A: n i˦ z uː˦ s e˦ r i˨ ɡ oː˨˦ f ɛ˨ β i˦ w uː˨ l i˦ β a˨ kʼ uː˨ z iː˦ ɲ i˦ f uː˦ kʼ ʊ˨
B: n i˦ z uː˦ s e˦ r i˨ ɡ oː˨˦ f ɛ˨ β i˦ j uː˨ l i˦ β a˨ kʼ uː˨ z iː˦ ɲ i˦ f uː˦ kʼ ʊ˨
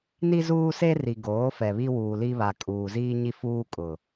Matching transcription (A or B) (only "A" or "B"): A